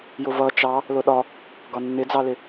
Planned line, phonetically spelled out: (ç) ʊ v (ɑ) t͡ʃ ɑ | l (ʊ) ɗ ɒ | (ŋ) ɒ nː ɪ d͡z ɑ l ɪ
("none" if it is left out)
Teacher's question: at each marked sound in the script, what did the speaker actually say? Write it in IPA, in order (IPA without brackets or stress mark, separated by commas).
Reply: j, ʌ, ʊ, ɡ